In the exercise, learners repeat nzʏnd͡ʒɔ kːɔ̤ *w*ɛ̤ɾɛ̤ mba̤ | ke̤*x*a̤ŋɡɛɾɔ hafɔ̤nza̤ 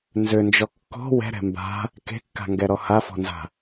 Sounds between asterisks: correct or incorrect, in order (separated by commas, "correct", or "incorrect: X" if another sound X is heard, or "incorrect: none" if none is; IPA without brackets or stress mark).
correct, incorrect: kː